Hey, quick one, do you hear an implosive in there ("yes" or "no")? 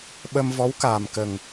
yes